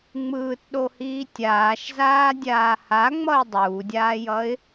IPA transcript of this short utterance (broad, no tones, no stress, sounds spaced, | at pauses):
ŋ͡m ɯː t ɗ o h iː tʲ aː ʃ z aː dʲ aː h a ŋ͡m ʌ ɪ̯ dˤ uː dʲ aː j ʌ ɪ̯